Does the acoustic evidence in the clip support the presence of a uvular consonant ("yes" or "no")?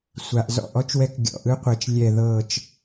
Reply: yes